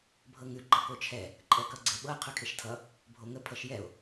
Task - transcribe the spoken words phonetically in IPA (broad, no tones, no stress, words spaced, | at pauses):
bʱɤŋʉ ɡ͡ǃʌkot͡ʃʰɛ | ǃʼɛkʌɡ͡ǀeɓɤ qʰʉkʰeʃtʰʌ | bʱoŋə pʰʌʃjɛo̯